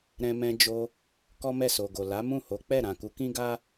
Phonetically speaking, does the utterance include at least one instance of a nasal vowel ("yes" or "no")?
yes